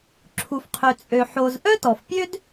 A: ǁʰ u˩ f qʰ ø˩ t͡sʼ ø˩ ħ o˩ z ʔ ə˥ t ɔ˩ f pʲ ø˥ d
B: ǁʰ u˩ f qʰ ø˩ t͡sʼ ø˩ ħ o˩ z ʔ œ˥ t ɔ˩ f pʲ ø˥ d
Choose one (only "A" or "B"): B